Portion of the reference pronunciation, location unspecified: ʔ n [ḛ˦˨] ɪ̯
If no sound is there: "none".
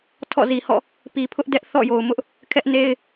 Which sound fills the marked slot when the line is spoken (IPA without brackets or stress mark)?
e˦